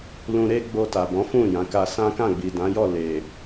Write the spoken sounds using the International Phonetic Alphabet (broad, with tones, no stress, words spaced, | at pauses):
lũ˧ɾe˦ ɡ͡bo˧ta˨bɔ̃˨˦fũ˦˨ jã˨˦ ka˧sã˦ kã˦˨ɡ͡bi˨dã˨˦jɔ˦˨ le˨